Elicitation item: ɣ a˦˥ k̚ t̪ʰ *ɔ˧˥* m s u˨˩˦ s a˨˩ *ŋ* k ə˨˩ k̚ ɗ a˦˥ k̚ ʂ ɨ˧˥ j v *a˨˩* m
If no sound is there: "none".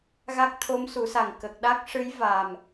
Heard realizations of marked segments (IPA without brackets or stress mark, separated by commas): o˧˥, ŋ, a˨˩